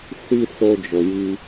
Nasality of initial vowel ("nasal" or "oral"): oral